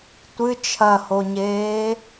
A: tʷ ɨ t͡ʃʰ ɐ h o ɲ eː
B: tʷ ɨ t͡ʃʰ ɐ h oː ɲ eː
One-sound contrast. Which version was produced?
A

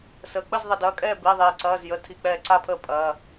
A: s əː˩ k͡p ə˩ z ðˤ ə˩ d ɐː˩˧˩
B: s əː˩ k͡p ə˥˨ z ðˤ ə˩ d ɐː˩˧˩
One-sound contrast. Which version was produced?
B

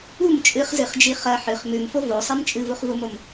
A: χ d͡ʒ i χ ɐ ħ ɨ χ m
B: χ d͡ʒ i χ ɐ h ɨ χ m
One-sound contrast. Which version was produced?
A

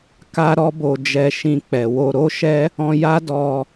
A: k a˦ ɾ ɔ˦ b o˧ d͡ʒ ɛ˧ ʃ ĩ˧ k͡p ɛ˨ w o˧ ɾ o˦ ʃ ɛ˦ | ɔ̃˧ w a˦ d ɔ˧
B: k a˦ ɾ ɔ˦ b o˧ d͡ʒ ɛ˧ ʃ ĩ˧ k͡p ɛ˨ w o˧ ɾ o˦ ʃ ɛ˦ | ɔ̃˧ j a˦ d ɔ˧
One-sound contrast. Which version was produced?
B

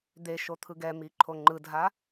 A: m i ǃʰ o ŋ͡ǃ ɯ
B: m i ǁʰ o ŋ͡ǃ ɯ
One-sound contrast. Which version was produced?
A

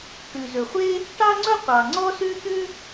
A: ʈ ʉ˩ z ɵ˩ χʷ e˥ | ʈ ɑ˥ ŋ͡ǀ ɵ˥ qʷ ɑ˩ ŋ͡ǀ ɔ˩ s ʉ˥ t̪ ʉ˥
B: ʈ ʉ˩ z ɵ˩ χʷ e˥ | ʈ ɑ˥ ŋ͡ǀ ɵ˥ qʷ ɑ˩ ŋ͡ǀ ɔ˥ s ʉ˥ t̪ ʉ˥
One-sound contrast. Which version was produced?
B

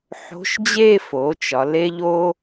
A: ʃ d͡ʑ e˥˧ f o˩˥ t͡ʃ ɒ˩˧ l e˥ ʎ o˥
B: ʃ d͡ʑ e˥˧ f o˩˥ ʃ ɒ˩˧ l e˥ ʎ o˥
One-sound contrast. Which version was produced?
A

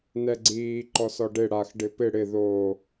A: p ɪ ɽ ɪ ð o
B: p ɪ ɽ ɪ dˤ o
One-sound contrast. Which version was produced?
A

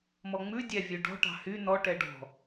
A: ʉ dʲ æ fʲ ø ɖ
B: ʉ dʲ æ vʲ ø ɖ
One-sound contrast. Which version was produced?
B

